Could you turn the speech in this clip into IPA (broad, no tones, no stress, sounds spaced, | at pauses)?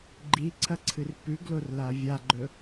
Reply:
ɡ͡ǃ i ǀʰ ɐ ǀʰ ɨ r p ʉ ɡ l o r l a vʲ a ɡ͡ǃ ɵ